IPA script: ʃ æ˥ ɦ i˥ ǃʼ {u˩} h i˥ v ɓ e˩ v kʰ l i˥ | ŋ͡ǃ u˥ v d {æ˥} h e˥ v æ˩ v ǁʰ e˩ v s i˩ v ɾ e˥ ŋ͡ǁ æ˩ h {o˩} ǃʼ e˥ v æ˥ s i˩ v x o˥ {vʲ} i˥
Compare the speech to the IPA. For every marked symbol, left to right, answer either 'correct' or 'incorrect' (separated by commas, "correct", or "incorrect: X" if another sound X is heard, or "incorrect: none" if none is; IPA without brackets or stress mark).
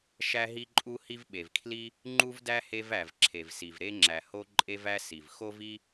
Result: incorrect: u˥, correct, incorrect: o˥, incorrect: v